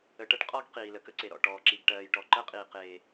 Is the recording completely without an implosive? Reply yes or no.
yes